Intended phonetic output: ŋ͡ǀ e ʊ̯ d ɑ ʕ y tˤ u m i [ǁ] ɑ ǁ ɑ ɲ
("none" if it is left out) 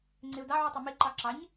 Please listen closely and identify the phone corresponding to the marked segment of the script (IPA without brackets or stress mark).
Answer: ǃ